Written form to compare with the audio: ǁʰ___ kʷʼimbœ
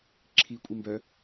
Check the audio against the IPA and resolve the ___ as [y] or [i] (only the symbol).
i